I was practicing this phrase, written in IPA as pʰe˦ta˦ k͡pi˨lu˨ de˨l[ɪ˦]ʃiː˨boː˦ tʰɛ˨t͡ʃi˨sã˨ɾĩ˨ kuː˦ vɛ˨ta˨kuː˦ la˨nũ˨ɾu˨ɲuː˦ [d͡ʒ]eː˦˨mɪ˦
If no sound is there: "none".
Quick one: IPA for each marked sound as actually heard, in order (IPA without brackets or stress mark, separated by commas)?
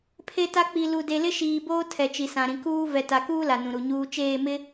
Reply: ɪ˦, t͡ʃ